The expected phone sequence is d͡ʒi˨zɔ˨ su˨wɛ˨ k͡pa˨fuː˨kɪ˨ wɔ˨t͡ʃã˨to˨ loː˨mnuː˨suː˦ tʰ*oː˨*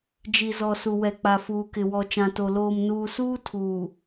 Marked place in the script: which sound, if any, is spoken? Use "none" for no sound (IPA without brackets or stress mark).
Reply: uː˨